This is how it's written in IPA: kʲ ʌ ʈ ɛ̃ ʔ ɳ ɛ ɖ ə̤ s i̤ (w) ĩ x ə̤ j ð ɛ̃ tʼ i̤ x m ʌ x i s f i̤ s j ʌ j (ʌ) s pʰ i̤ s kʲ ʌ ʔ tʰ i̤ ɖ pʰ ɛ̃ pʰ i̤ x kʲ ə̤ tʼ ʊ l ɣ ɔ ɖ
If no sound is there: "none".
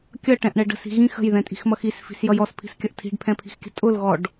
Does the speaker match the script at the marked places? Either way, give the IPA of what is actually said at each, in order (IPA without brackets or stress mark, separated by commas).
ɣ, ɔ